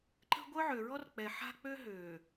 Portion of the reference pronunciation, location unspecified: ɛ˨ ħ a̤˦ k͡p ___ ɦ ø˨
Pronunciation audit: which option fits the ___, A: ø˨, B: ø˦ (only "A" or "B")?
B